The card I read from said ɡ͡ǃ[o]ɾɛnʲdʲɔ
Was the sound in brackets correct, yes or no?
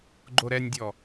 yes